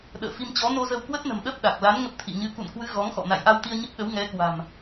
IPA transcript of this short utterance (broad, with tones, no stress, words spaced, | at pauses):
ɗə̰ː˧˨fi˧mt͡ɕɔ˨˦ no˧zə˧wkwə˦˥t̚nə̤˨˩m ɗə˦˥p̚ɗa˨˩k̚ la˨˦n ŋə˦˥p̚t̪ʰḭ˧˨ɲɨ˧ kṵ˧˨nkwɨ˨˦ ɣɔ˨˦ŋxɔ̰˧˨ na̰˧˨jʔa˧wt̪i˧ə̯ ɲə˦˥p̚ɗə˨˦wŋɛ˨˦ kwa̤˨˩m